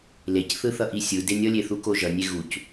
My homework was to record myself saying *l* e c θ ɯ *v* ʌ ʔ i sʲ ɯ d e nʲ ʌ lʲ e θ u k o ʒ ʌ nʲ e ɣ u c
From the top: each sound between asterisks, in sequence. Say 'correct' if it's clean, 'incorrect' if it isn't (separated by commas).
correct, incorrect